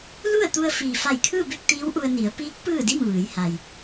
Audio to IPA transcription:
l u˥˨ ə̯ t̪ u˧ ə̯ f iː˩ f a˧˩ j kʰ ɯː˥˨ b e˥˨ k̚ t̪ iː˧˥ w ʔ u˧ ə̯ n i˩˧ ə̯ p iː˧˥ k̚ p ɯː˥˨ d i˥˨ m ʋ ɯː˩˧ j h a˩ j

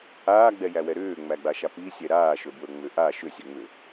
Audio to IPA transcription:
aː ɡ͡b ɛ j æ w ɛ ɾ ʏː ŋ͡m æ ɡ͡b a ʃ a p i sʲ ɛ ɾ aː ʃ ɵ b w ɵ ŋ͡m ʏ ʔ a ʃ ʏ sʲ ɛ ŋ͡m ʏ

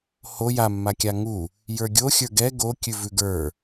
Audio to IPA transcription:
h o j a mː a kʲ a ŋ u | j ə˞ ɡʲ o xʲ ə˞ ɡ ɛ ɡ o kʲ ʉ v ʉ ɡ ə˞

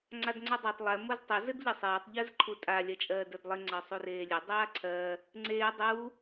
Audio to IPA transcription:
ŋ͡ǀ a d ŋ͡ǀ o dˤ a tˤ lˠ e m o z tˤ o z ɘ d ʎ ɪ sˤ eː tˤ ʎ ɜ z ǃʰ u tʼ a lʲ ɜ t͡ʃʼ ɜː d ə˞ d lˠ ɪ ŋ͡ǀ ɜ sˤ u r eː lʲ ɘ dˤ aː ǀʰ ɜ | ŋ͡ǀ eː dˤ u

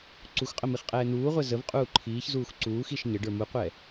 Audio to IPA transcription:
ǀ u x qʼ ə m i χ qʼ ɛː n̪ uː ʁʷ ɛ z ə v qʼ uː ǃʰ iː ç z uː x ǀ uː x i ʃ ɲ ə ɖ ə˞ m u qʷ ɛ

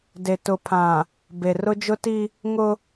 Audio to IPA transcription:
d e˨ t ʊ˨ pʰ ã˨ | b e˨ r ʊ˦ d͡ʒ ʊ˦ t i˦ | ŋ ʊ˦

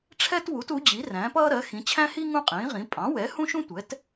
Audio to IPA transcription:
ʈ͡ʂʰ ɛ˥ t w u˩˥ t u˩˥ d͡ʑ i˩˥ r æ̃˩˥ p ʌː˥ ɾ ɜ˩˥ x ĩ˩˥ t͡ɕʰ æ̃˥ h i˥ ŋ ũ˥ qʼ ĩː˩˥ ʁ ĩ˩˥ pʼ ɑ̃˩˥ w ɛ˩˥ h ũ˥ ʃ ũ˥ tʷ ɛ˩˥ t

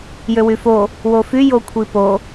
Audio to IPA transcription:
j ø w y f o | w o f y j o kʷʰ i p o

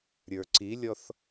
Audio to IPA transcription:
ɾʲ ə˞ ǀ i lʲ ɔ θ

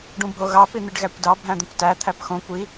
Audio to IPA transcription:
ɖ ũ bʱ o ɣ ɑ p i n̪ i ɖ ɣ æ kʷ d ɑ bʱ æ̃ d̪ ũ kʷ t æ t̪ʰ æ p x õ kʷ i

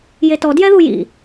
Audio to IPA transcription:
j e t ɔ d j ɛ ð u j ḭ

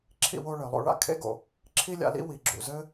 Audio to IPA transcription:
ǁʰ ḭ˧ w o˧ ɭ ɘ˩ lˠ o̰˧ ɭ a̰˧ kʰ ḛ˥ ɡ o̰˩ | ǁʰ i˥ lʲ a̰˧ l ḭ˥ w i˩ ɡ͡ǁ ṵ˩ z ɘ˥

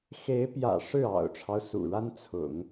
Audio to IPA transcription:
x e˧˥ ɪ̯ p j ä̰˨˩ ʂ ɻ̩˥˩ ɑ̰˨˩ ʊ̯ ʈ͡ʂʰ ɑ˦ ʊ̯ s ṵ˨˩ ɻ a˥ n t͡sʰ ʊ̰˨˩˦ ŋ

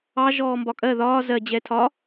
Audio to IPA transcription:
ɑ ʒ ɔː m b ɒ kʼ ɜ ð ɒː z ɜ d͡ʑ ɛ tʰ ɒ

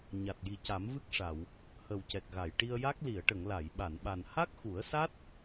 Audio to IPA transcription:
ɲ a˨˩ t̚ j i˨˩ c a˨˩˦ m v ɨ˦˥ k̚ ʂ a˨˩˨ w | h ə˨˩ w c ɛ˨˩ k̚ ɣ a˨˩˨ j ʈ i˧ ə̯ j a˦˥ k̚ l i˨˩˨ ə̯ ʈ ə˨˩˨ ŋ l a˨˩˨ j ɓ a˨˩˨ n ɓ a˨˩ n h a˦˥ k̚ x u˨˩˦ ə̯ s a˦˥ t̚

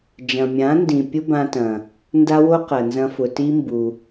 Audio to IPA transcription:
d͡ʒ ɐ̃˨ mʲ ã˨˦ n d ĩ˨ pʲ ʊ˦ b ã˧ t ɐ̃˨ | n d a˦ w o˦ q ɐ˨ n z ɐ̃˧ f ʊ˨ t i˦ m b u˧

